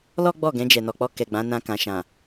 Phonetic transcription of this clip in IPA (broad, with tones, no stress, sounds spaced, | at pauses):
l ɔ˦ ɡ͡b ɔ˦˨ ɡ ɛ̃˧ d͡ʒ ɛ˨ n ɔ˨ k͡p ɔ˧ k ɛ˨ ɡ͡b ã˨˦ n ã˧ k ã˨ ʃ ã˨